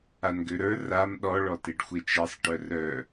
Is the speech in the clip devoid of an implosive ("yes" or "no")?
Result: no